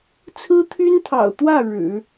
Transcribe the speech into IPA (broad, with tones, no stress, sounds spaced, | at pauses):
t͡sʰ ɹ̩˥ t̪ʰ y˥ n t̪ʰ ɑ̰˨˩ ʊ̯ t̪ w ä˥˩ ɻ ɻ̩˨˩˦